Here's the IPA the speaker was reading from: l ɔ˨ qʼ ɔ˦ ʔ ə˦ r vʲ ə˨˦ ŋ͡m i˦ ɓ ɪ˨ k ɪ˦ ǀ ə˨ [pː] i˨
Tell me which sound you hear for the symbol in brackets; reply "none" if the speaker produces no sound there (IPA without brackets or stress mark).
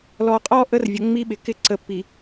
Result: pː